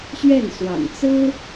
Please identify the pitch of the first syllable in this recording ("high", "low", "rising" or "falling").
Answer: falling